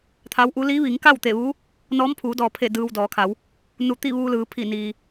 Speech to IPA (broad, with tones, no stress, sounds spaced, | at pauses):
t̪ʰ a˧˥ w ʔ u˧˥ l i˧˥ ʋ i˩˧ ŋ k a˥˨ w t̪ e˧˩ ʋ uː˧˥ | n ɔː˧˥ m pʰ uː˩˧ d ɔː˩ pʰ e˧˩ d ɯː˧ w d ɔː˩˧ kʰ a˩˧ w | n u˧˩ t̪ i˥˨ ʋ uː˧ l ɯː˩˧ pʰ i˧˩ n iː˩